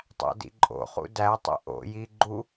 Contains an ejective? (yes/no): yes